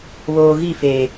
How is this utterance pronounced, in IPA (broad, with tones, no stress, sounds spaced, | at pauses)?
β oː˨ ɣ i˦˨ f eː˨